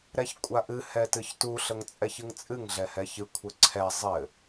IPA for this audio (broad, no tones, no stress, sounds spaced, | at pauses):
ɾ ɛ ç kʷʼ a ʔ ɨ h ɛ t ɨ ç t u ɬ ə ŋ t͡sʼ ɛ ç ɨ ŋ t͡sʼ ɨ ŋ ɮ ɛ h ɛ ç ɨ kʷʰ ɘ ǀʰ ɛ zˤ ɘ